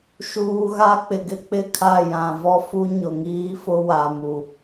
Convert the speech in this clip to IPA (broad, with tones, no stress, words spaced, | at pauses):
ʃuː˨ɣa˦ k͡pɪ˨ɡɪ˦k͡pɪ˦˨kʰa˦˨ jã˨ vɔ˦ fu˦ ɲʊ˨ŋiː˦fʊ˦ wa˨mu˨